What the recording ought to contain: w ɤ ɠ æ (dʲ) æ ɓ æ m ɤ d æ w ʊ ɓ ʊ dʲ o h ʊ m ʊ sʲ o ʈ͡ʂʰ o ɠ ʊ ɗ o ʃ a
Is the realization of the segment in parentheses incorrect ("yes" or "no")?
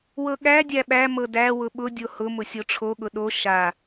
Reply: no